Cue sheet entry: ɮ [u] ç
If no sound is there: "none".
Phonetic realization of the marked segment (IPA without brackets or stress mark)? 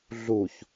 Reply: u